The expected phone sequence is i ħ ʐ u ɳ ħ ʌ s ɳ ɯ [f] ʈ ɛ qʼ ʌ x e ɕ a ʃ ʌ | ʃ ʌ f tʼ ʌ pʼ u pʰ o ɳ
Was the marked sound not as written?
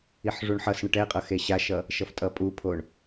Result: yes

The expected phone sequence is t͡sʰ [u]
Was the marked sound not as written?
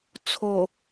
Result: yes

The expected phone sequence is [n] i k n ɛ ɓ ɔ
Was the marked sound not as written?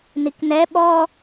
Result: no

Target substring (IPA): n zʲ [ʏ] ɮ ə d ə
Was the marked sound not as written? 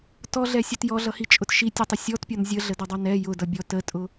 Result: yes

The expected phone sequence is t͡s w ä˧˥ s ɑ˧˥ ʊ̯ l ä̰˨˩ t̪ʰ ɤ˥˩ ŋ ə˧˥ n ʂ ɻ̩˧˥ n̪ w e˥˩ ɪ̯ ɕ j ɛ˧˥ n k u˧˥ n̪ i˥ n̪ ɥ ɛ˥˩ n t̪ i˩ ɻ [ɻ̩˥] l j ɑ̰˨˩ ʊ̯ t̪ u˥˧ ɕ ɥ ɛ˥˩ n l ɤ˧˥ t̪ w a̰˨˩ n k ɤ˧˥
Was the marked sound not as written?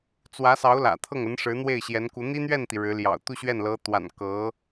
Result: yes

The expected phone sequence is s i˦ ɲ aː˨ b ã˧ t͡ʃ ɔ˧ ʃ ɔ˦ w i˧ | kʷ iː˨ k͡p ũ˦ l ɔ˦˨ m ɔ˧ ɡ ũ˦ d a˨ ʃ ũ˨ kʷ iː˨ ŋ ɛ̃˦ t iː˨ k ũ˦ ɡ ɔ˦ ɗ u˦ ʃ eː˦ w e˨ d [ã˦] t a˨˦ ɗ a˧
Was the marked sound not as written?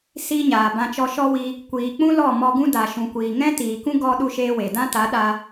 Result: no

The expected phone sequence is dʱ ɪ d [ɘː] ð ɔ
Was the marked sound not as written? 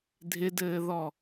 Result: no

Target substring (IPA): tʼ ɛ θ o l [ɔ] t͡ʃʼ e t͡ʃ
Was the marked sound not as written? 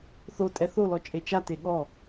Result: no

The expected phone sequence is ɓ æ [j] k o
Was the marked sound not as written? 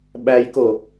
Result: no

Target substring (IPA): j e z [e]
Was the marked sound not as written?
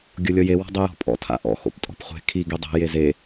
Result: no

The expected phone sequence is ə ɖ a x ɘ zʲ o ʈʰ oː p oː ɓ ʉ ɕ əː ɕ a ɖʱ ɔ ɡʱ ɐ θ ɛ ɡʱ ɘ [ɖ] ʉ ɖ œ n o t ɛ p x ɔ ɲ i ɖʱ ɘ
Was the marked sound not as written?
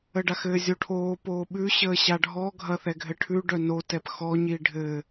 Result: yes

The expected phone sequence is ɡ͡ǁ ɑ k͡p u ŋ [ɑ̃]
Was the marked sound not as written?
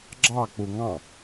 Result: no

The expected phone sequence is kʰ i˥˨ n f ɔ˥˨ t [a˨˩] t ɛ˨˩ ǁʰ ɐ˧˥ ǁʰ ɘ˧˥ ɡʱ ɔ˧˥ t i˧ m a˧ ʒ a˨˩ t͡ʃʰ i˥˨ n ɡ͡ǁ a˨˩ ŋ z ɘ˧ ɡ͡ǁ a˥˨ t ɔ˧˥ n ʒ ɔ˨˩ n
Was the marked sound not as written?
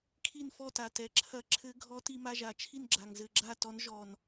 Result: no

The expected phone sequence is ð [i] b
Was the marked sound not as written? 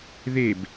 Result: yes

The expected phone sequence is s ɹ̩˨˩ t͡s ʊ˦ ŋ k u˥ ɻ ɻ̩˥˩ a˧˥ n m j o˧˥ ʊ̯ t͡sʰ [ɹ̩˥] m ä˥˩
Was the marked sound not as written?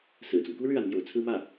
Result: no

